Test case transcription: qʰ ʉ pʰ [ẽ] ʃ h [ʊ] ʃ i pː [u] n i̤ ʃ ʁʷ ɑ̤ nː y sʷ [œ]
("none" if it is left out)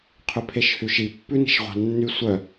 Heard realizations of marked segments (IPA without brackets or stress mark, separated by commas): e, ʉ, ʉ, œ